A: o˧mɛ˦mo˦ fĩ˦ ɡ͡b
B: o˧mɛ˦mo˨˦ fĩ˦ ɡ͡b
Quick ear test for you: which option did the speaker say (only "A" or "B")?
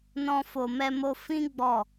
A